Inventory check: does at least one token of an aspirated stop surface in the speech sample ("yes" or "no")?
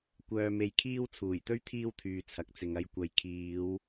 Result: yes